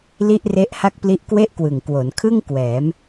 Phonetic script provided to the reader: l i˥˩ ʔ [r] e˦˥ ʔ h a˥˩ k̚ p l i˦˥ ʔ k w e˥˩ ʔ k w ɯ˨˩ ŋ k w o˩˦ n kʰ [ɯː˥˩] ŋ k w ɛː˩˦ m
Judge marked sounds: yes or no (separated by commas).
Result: yes, no